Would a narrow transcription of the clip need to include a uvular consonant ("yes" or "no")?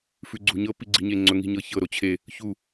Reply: no